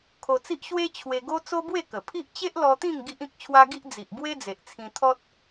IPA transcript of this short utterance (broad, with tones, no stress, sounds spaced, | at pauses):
kʰ o˧ t͡s i˦ ʔ ɕ w e˦ t͡ɕʰ w e˧ ɡ o˦ t͡s o˦ b w e˥˧ k ə˨˩ pʰ i˦ ʔ t͡ɕ e˦ ʔ l ɔ˧ t̪ ĩ˥˧ ŋ ɡ i˦ ʔ ĩ˦ k̚ t͡ɕʰ w a˦ ɡ i˦ ʔ d͡z i˨ ʔ b w e˦ d͡z e˨ ʔ t͡sʰ ĩ˧ t̪ʰ ɔ˦ t̚